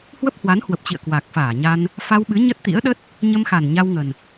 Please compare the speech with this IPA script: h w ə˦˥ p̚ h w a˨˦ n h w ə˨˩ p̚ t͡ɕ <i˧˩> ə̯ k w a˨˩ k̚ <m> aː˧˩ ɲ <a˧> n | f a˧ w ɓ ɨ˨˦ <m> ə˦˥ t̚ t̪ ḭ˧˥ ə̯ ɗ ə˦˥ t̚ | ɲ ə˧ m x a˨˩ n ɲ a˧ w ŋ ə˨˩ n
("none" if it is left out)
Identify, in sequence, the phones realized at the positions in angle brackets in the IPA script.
ḭ˧˨, f, a˧, ɲ

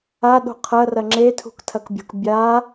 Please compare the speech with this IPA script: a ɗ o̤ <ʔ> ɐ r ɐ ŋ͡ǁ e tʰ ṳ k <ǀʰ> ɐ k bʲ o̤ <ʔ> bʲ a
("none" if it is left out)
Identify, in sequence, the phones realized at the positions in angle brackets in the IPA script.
qʰ, tʰ, k

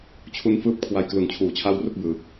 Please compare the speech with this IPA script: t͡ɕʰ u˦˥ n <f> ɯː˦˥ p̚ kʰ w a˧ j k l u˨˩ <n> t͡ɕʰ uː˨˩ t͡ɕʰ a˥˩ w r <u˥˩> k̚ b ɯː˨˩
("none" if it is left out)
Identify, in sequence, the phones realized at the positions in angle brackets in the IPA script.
f, n, u˥˩

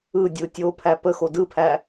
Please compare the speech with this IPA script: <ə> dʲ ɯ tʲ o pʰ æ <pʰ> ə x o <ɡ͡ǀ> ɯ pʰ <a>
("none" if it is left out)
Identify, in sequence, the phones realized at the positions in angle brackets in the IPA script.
ɯ, p, d, æ

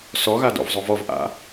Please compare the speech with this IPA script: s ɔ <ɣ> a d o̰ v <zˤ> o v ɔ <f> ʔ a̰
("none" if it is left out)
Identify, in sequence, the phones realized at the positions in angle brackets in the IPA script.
ɣ, zˤ, v

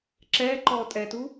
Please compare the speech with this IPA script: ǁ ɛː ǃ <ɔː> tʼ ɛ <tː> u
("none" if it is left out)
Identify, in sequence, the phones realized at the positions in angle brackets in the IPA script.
ɔː, t

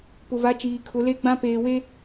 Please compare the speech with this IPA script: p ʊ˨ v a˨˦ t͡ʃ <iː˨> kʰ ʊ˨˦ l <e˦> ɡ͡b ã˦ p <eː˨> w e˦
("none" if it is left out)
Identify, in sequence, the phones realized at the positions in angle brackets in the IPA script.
iː˨, e˦, eː˨

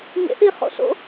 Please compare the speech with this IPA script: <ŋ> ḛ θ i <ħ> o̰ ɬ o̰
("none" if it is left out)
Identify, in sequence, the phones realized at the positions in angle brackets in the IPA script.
ɲ, χ

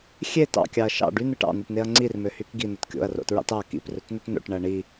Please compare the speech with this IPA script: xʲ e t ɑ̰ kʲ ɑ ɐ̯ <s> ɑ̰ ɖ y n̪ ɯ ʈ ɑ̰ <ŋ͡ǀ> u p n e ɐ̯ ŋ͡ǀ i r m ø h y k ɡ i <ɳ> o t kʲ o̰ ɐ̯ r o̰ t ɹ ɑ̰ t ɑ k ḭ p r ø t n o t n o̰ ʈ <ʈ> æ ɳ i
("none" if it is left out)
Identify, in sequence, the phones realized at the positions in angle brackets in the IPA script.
ʃ, n̪, n̪, ɳ

